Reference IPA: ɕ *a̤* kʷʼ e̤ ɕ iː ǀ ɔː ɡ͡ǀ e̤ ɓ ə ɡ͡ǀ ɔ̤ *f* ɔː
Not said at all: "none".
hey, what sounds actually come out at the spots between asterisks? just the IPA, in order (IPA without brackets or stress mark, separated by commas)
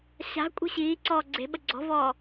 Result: a̤, v